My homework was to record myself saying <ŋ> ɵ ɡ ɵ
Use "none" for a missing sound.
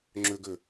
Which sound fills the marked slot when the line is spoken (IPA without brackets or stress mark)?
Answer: ŋ͡ǁ